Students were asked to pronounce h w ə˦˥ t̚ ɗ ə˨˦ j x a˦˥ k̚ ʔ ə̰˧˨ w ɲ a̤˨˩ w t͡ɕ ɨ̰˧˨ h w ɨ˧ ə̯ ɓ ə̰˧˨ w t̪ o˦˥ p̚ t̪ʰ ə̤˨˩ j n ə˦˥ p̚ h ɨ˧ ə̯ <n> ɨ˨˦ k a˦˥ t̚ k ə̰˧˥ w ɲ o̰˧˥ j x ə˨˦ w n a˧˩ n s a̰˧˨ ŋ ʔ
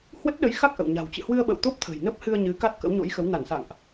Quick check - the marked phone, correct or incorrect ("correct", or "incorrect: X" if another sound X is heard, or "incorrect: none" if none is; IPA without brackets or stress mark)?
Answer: incorrect: ɲ